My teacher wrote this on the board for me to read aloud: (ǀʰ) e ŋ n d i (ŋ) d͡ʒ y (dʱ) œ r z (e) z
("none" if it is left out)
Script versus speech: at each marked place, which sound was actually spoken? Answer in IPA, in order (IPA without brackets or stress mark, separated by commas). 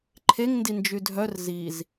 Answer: ǃʰ, n, dʱ, i